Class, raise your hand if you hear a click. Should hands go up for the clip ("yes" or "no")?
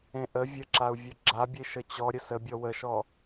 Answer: yes